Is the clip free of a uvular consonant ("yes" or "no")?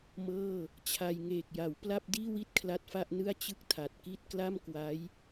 yes